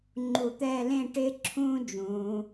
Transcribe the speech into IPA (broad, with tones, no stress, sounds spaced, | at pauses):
ŋ͡ǃ u˧˩ t̪ ɛː˥˧ l ẽ˥˧ ʈ ɪː˥ ǁʰ ũː˥ d͡ʒ ũː˩˧